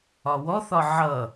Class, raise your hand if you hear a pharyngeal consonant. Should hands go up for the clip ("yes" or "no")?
yes